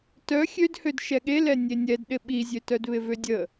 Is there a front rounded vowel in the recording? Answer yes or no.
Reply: yes